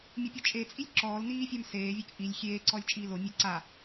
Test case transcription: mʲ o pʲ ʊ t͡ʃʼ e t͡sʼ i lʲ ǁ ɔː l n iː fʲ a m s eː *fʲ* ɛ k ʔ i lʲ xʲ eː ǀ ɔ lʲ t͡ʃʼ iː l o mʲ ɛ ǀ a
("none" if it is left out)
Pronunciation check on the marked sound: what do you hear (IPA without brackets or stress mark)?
vʲ